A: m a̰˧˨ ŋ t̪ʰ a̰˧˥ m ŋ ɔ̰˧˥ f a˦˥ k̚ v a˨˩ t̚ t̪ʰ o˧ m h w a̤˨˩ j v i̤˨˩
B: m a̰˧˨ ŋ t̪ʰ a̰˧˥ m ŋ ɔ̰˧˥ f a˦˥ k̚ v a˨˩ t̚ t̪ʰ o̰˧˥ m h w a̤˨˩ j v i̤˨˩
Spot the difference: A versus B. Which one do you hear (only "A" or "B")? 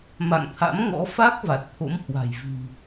B